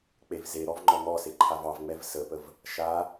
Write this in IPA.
k͡pevzeɾɔv ŋ͡ǃɔŋɔse ǃʰavɑvŋ͡mɛv səpəv | ʃa

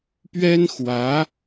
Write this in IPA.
pɥɛ˥nxwä˧˥

